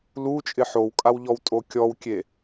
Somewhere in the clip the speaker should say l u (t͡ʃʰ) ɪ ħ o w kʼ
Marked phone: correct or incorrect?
incorrect